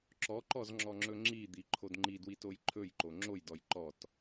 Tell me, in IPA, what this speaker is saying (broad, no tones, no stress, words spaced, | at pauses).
ǁɔǃɔz ŋ͡ǁɔŋ͡ǁɵŋ͡ǁid̪i ǃʰodŋ͡ǃidwit ojǃʰɵjǃo ŋ͡ǁojdɔj ǃɔt